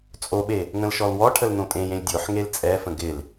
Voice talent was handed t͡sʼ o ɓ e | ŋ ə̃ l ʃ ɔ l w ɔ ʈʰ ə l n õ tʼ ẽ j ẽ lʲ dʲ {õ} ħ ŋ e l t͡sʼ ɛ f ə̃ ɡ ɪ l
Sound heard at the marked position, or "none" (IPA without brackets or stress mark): o